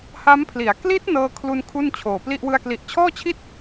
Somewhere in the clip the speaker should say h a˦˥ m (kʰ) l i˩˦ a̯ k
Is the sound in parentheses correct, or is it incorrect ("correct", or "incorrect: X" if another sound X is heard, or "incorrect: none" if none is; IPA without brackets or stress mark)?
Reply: incorrect: pʰ